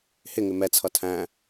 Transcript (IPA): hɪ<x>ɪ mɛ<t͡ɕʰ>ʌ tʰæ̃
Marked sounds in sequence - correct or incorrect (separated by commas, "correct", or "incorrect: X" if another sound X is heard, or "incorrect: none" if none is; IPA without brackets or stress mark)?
incorrect: ŋ, incorrect: t͡sʰ